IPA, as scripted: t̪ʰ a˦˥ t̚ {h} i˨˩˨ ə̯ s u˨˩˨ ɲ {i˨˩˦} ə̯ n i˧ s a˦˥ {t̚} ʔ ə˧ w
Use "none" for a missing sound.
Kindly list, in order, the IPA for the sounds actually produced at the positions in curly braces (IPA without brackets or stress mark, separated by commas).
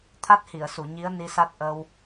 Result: h, i˧˥, t̚